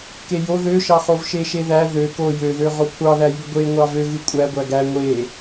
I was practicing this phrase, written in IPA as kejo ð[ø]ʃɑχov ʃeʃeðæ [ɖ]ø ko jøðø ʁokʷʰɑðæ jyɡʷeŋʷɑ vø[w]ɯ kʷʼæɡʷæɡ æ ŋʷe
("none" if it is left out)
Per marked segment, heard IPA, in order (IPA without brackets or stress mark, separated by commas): ø, ð, ɣ